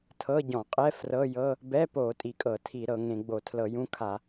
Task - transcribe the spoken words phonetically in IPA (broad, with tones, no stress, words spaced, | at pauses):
tʰɤ˧˥˧ɟɔ̃˧˩˧qʼɛ˧˥˧ frɤ˧˥˧jɤ˧˥˧ | bɛ˧˥˧po˧˩˧ tʼi˧˩˧kʼɤ˧˩˧tʰi˧˩˧ ɾɤ˧˩˧ŋẽ˧˩˧ɡ͡bo˧˩˧ tʰlɤ˧˩˧jũ˧˥˧kʰa˧˩˧